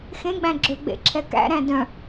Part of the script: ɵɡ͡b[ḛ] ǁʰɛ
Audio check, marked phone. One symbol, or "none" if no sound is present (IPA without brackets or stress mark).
ḛ